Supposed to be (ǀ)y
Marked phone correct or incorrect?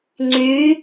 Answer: incorrect